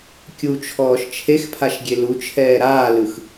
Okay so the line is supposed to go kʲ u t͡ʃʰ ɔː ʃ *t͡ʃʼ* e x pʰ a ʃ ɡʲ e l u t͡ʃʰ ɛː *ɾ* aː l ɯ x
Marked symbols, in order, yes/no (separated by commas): no, yes